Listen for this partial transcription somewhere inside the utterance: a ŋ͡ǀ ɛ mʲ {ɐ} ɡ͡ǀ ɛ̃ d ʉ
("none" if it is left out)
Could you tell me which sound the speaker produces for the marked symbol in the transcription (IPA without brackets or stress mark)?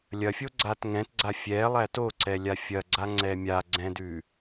a